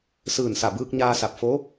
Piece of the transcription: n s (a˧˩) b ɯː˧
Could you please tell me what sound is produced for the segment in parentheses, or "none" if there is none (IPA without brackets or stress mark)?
a˧˩